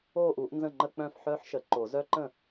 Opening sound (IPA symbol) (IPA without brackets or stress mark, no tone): oː